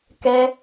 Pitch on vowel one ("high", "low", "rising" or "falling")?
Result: high